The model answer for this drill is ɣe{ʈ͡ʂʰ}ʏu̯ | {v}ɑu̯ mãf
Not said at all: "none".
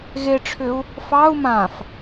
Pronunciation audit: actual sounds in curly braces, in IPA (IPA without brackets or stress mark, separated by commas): ʈ͡ʂʰ, f